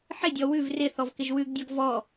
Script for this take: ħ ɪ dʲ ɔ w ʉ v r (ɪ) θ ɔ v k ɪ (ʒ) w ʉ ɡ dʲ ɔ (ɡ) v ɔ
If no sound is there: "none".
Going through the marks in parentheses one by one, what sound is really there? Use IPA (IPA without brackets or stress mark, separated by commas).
ɪ, ʒ, ɡ